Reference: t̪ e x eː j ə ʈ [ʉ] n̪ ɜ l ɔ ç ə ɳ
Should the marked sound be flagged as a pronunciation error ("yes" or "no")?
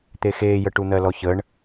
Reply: yes